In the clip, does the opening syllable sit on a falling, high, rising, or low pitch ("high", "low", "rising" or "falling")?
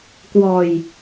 low